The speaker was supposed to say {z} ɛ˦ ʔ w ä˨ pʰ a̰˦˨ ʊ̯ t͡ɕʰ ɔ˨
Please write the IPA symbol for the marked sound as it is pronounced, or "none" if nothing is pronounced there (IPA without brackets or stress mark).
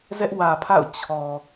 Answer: z